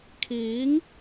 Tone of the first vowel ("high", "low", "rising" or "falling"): rising